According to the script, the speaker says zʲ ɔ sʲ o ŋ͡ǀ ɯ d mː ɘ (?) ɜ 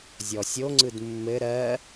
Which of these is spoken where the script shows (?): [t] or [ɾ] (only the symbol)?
ɾ